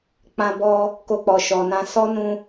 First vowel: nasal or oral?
nasal